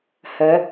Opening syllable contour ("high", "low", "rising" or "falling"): rising